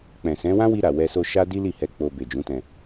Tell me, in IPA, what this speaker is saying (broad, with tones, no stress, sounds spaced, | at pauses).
k͡p ɛ̃˨ s ɛ̃˨˦ w ã˦ w i˧ ɾ a˨ w ɛ˧ s o˧ ʃ a˦ d i˦ l i˦˨ h ɛ˧ k͡p o˧ b e˨ d͡ʒ ũ˨˦ t ɛ̃˧